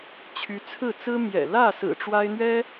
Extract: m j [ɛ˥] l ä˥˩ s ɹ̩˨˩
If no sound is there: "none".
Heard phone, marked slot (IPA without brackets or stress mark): ɛ̰˨˩